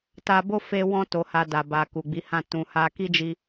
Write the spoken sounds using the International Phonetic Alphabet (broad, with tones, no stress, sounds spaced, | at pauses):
t a˧ b o˦ f e˧ w ɔ̃˧ t o˨ h a˨ d a˨ b a˨ k u˨ ɡ͡b i˨˦ h ã˦˨ t ũ˨ h a˧ k i˦ d͡ʒ i˧